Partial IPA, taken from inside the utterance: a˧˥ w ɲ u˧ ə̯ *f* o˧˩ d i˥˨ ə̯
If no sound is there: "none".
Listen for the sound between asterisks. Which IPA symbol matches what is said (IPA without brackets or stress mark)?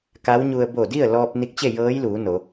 b